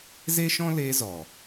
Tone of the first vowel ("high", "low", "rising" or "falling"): high